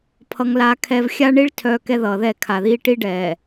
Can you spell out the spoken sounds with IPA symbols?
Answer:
pʰ ʌ˦ ŋ l aː˦ kʰ ɛ˦ v xʲ a˦ ɳ i˦ ɭ tʰ œː˦ k ɛ˦ ð ʌː˨ ð ɛ˦˨ kʰ a˨ ð iː˦ ʈ i˦ ɖ ɛː˨

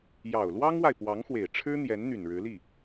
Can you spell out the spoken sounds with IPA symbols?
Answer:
j ɑ˨˩ ʊ̯ l w ɑ˥ ŋ w a˨ ɪ̯ p w ɑ˧˥ ŋ x w e˨˩ ɪ̯ ʈ͡ʂʰ ɻ̩˥ n̪ j ɛ˧˥ n n̪ y˨˩ n ɻ ɻ̩˧˥ l i˥˩

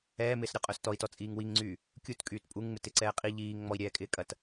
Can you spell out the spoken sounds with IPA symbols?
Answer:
ɛː m ɪː s ɾʲ ɔ qʼ œ s t ɔ i̯ t ɔ t͡sʼ iː ŋ w i ŋ ŋ͡ǀ yː | kʲ u t kʼ yː t pʼ u ŋ ŋ͡m ɪ t ɪ ǀ ɛː qʼ i ʎ iː ŋ ŋ͡m ɔ i̯ ɾʲ ɛː kʼ ɪː kʼ ɐ t

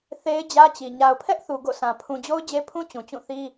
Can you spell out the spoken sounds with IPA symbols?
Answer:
θ e˦ ɪ̯ d͡ʑ ä˦ t͡ɕ i˨ ɲ a˨ ʊ̯ pʰ ɛ˦ ʔ θ u˨ ɡ o̰˦˨ sʰ ã˨ pʰ ũ˨ d͡ʑ o˦ ʊ̯ d͡ʑ e˦ pʰ ũ˦ t͡ɕ ũ˨ t͡ɕ ũ˦˨ θ i˦

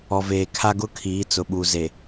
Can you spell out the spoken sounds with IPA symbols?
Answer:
ɔ˨ v eː˨ kʰ a˦ ɡ ʊ˦ kʰ iː˨˦ t͡s ʊ˨ ɓ u˨ z e˨

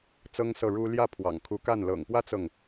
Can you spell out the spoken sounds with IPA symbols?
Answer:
t͡s ɤ˥ ŋ s ɤ˥˩ ɻ u˥ l j ä˥˩ pʰ w ɑ̰˨˩ ŋ kʰ u˧˥ k a˥˩ n l ɤ̰˨˩ ŋ p w ä˥ t͡s ɤ˨ ŋ

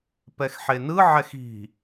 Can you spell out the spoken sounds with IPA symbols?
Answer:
p ɛ x ħ e n ɯ ʕ ɛ x i̤

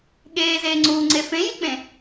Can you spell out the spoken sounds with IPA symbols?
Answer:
ɠ eː z eː ŋ͡ǀ uː ŋ͡ǀ e f ẽ j i k͡p ẽ

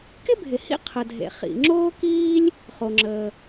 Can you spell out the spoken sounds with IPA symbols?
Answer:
k ɪ˥ bʱ ɪ˩ h ḭ˥ qʰ ə˩ dʱ ḛ˩ χ ḭ˩ ŋ͡ǁ oː˥ k iː˥ lʲ | χ o˩ ŋ͡ǁ əː˩

